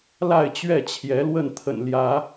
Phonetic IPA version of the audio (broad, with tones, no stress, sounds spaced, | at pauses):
l a˥˨ ɪ̯ t͡ɕ ɥ ɛ˥˨ t͡ɕʰ j ɛ˨˦ l w ə˥˨ n t̪ʰ ə̰˨˩ n l j ä˨˦